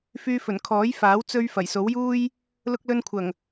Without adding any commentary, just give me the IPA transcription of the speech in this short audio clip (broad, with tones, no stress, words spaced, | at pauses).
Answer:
fyː˧fɵ˨˩n kʰɔː˨˥jfaː˨˥w t͡sɵ˧ɥ fɐ˨˩jso˨˥wjuː˥j | lʊ˧k̚lɵ˧nkʷʰɐ˨˩ŋ